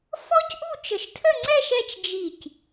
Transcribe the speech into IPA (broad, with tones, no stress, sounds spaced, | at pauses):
f ɔ˥ c ʔ u˥˧ t͡ʃ ə˧˩ ʃ tʰ ə˥˧ ŋ͡ǀ ɛ˥˧ ʃ ɛ˥˧ t͡ʃ d͡ʒ i˧˩ c